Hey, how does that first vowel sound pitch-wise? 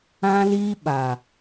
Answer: high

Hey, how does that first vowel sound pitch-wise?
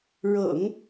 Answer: low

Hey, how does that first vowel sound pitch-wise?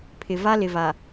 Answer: low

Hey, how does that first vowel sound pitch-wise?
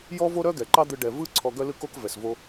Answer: high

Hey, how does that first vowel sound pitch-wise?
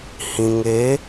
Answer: low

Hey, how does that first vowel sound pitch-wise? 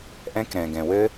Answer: high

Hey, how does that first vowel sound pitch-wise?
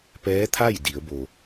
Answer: rising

